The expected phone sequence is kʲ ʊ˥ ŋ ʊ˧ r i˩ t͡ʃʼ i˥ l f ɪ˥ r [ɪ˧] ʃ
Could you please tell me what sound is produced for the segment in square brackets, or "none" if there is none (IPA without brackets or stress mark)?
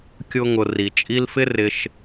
ɪ˧